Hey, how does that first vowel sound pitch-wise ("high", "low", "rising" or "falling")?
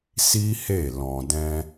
high